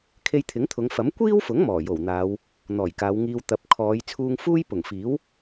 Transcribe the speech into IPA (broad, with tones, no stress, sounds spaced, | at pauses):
kʰ e˧ j t̪ʰ ɪ˨˥ ŋ t̪ʰ ʊ˨˧ ŋ f ɐ˨˥ m kʷ iː˥ w f ʊ˨˥ ŋ m ɔː˨˩ j o˨˩ w n̪ aː˨˧ w | n̪ ɔː˨˩ j k aː˨˧ w ŋ iː˧ w t̪ ɐ˨ p̚ kʰ ɔː˨˧ j t͡sʰ uː˧ ŋ f uː˥ j p ʊ˨˩ ŋ f iː˨˥ w